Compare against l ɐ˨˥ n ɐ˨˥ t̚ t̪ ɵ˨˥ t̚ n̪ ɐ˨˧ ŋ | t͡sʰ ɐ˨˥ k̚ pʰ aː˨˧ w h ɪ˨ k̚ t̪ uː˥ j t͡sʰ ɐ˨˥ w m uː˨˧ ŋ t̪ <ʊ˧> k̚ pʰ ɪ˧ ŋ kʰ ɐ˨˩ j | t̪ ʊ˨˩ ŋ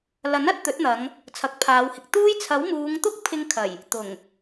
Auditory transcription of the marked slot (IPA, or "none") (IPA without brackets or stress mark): ʊ˥